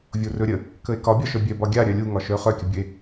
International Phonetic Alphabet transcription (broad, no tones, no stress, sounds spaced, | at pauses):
vʲ o r ɵ ɾʲ ə | k ə e̯ k ɒ bʲ ɒ ʃ œ bʲ œ b ɒ ɡʲ a ɾʲ œ lʲ u ŋ ɒ ʃ œ χ œ kʲ ə bʲ ɵ e̯